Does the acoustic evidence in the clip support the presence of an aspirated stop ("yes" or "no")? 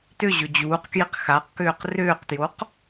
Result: no